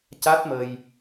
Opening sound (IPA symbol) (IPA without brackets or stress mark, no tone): c